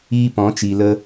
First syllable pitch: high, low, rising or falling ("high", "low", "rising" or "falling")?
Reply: high